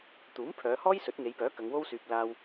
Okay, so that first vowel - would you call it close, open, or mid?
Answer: close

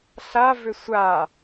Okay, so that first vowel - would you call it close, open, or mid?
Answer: open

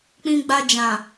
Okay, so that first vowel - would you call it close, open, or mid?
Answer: close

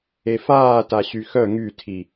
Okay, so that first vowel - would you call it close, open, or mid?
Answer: mid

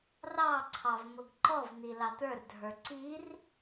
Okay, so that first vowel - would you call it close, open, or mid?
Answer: open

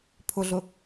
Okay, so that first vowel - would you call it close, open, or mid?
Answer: close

